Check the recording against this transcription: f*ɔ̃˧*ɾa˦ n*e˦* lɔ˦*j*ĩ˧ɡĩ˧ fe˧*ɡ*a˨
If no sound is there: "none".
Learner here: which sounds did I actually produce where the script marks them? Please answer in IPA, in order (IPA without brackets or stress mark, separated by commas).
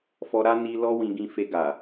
ɔ˧, i˦, w, ɡ